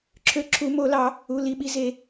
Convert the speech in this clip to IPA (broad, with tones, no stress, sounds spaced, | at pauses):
ǁʰ ø˧˩ ǁʰ u˨˩˦ m o˨˩˦ l ɑ˨˩˦ | u˩˧˩ l i˩˧˩ ɓ i˧˩ z e˨˩˦